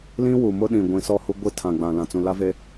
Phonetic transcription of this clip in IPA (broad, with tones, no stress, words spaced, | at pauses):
lĩ˦wu˨ mʊ˦ɗĩ˨ ɡʷĩ˨ sɔ˦˨hu˦ ɡʷi˦tʰã˨ɡ͡bã˨ lã˨t͡sũ˨la˦ve˦